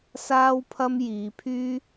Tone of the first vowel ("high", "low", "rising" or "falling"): high